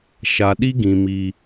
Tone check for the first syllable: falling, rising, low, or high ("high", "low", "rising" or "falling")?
low